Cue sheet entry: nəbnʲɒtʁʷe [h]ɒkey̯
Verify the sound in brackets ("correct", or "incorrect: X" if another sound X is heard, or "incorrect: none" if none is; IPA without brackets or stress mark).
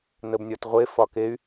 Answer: incorrect: f